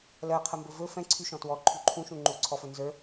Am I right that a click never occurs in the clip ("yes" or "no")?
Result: no